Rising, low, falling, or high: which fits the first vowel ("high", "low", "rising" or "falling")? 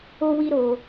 high